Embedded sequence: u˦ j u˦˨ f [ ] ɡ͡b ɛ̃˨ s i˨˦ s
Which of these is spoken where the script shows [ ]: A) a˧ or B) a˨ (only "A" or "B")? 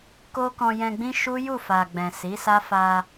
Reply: B